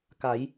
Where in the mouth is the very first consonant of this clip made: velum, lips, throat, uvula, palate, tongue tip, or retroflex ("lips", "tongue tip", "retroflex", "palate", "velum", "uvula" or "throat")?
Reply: velum